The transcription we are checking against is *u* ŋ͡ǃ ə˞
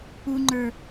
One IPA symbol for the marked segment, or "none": u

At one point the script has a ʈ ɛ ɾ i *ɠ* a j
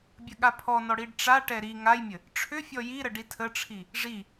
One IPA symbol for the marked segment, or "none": ŋ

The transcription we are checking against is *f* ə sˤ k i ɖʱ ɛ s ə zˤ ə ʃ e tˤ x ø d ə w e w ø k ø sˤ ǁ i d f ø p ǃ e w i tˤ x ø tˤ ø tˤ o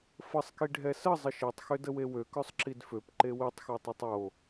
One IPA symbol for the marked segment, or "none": f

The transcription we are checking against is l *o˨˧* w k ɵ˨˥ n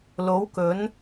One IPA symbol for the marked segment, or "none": o˨˥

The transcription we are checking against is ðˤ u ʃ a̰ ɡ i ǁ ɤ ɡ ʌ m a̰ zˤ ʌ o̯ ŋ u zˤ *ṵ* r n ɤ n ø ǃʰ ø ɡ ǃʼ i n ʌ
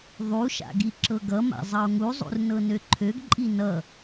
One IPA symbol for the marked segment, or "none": ṵ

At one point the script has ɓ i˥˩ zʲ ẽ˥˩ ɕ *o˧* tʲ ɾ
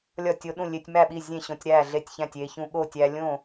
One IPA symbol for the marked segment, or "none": õ˧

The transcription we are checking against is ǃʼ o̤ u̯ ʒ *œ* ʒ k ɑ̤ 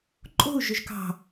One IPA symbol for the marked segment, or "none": ɵ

